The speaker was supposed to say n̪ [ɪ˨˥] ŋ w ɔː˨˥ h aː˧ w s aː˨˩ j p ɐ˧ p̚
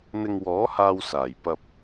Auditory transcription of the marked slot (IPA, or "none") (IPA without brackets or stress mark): ɪ˧